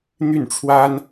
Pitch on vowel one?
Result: falling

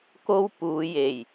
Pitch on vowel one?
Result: high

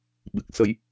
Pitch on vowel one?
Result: low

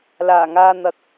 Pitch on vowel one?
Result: low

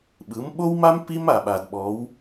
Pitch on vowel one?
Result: rising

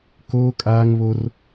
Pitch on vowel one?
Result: high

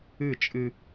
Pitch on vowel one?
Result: falling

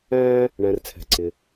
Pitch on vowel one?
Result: high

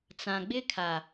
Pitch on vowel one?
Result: low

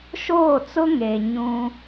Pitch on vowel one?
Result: falling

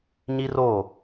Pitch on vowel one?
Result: high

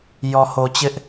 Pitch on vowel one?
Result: low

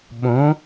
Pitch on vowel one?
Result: rising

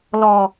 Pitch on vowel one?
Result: low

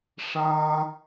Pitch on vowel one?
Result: high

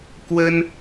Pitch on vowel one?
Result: high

